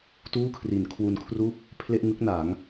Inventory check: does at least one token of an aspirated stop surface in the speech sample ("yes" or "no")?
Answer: yes